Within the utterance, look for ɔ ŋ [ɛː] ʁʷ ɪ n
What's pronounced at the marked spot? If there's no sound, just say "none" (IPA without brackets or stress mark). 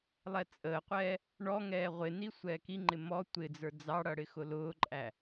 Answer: ɛː